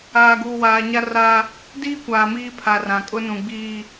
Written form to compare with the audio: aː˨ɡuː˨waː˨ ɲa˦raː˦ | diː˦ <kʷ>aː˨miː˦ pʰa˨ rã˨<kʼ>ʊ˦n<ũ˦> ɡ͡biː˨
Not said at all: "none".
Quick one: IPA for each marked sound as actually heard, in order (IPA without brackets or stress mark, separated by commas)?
kʷ, kʼ, ũ˨